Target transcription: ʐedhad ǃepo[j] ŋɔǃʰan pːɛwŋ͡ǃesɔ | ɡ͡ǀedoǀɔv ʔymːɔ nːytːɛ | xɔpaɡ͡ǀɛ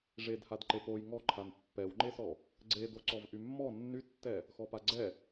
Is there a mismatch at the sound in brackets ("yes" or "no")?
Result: no